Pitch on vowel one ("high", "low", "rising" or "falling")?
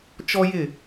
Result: high